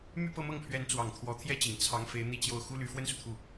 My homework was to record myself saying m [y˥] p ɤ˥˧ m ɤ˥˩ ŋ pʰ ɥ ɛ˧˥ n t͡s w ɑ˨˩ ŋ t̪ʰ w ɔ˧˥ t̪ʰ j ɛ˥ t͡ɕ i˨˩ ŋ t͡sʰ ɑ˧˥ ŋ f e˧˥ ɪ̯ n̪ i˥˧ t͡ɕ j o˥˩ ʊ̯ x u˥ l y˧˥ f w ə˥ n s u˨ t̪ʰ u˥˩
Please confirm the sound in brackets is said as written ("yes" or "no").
no